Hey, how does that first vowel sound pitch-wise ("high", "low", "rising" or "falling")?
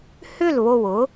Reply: falling